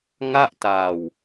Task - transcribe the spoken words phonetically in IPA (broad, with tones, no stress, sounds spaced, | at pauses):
ŋ a˥˩ ʔ t aː˨˩ w